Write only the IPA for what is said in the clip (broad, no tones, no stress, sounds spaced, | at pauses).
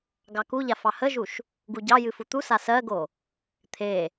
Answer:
ɡ ɑ k u ʎ a f ɑ h ə ʒ u ʃ | ɡ u ɟ ɑ j ɨ f u t̪ u s a s ɜ ɡ o | t̪ʰ e